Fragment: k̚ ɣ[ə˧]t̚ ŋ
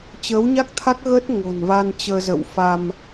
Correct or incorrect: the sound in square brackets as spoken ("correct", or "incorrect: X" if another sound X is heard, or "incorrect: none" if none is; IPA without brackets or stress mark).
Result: incorrect: ə˦˥